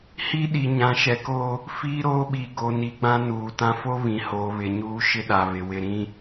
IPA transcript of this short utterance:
hi˦ɗi˨ ɲã˨ʃɛ˨ ko˦ | fi˦ɾoː˦ ɓi˨ɡo˨ ni˨ɡ͡bã˦ nuː˨tã˦ fo˦βĩ˨hoː˨ βɪ˨ ɲuː˦ʃɪ˦ɗa˨ βɪ˨ wɪ˨ɾĩ˦

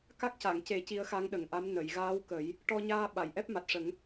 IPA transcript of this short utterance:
ka˦˥k̚ca˨˩˨ŋ ce˨˩˦ ci˧˥ə̯xa˧˥ŋɗə˨˩˨ŋʔa˧˥m nə˨˩˨jɣaː˧˥wkə˨˩˦j | ʈɔ˧ɲaː˧ɓa˨˩˨j ʔɛ˦˥p̚ma˨˩t̚ʂə˨˩˦ŋ

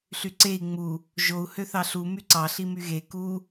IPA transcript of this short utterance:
ɬyǀei̯ ŋ͡mu | ʒou̯ høθɑɬu myǀɑ ɬimyɣe ku

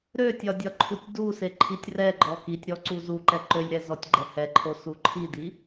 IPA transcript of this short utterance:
ɾøtʲɒ dʲɒǃʰutʲduse ǃʰitʲrɛɡ͡ǃɔ kitʲɾɔ ǀuzuǃɛ ǃølʲɾɛ zɔtʲɡ͡ǃɛhɛǃʰo suǃʰidi

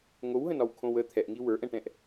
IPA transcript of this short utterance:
ŋowɦə̃nɒwkʰõw ə t̪ʰɛʔŋi wə˞ʔɛ̃ʈɛ̃ʔ

